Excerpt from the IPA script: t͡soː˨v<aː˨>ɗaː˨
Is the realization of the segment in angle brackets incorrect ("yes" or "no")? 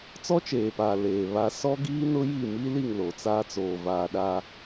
no